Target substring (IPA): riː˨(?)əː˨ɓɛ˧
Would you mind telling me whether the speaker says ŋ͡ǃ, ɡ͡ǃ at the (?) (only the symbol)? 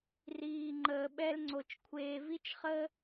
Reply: ŋ͡ǃ